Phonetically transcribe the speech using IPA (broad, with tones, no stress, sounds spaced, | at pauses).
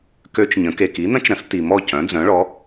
k ø˦˥ t͡ʃ ɲ ə̃˨˥ k e˨ k i˨˥ n̪ ə̃˦˥ t͡ʃ ɾ ə̃˨˥ s t i˨ m ɔ˥˨ c œ̃˨˥ d͡z œ̃˨˥ ɭ ɔ˨˥